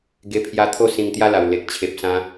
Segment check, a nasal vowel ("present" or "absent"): present